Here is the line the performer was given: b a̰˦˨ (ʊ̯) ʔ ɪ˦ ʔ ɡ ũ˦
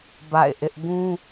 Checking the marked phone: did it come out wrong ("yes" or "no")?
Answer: yes